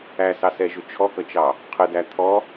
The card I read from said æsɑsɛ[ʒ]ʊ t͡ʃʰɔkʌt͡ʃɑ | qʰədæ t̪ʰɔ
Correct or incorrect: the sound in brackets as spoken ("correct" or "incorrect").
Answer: correct